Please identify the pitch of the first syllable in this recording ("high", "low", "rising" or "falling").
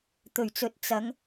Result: low